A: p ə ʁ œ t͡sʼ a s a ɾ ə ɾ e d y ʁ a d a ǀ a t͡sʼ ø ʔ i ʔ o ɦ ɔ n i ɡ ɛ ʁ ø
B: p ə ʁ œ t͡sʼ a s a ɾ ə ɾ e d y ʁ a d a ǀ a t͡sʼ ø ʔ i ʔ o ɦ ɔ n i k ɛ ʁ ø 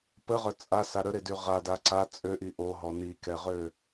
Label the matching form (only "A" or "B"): B